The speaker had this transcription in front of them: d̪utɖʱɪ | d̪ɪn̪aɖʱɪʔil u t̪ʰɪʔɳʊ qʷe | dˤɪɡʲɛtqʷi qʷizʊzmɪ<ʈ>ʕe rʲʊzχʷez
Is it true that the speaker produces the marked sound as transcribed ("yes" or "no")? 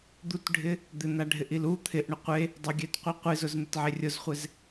no